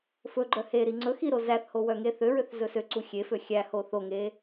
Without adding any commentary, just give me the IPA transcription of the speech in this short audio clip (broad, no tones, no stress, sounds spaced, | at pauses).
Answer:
f ɵ ɡ͡ǃ œ h e ɾ i ŋ͡ǀ ɵ x i ɾ o z æ θ h o w œ ŋ e θ ø ɹ ø θ z ɵ s ø ǀ u xʲ e f ø xʲ æ h o θ o ŋ e